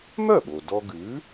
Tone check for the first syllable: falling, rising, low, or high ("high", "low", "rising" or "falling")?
falling